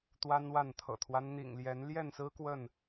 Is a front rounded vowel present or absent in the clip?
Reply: absent